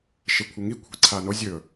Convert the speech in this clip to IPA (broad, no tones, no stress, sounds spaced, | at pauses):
ʃ e kʷʰ e ŋ i kʷʰ i̤ ǀʰ a n o zʲ ɵ